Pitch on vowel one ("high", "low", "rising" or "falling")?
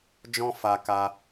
high